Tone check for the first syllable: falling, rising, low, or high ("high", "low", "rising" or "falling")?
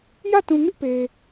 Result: falling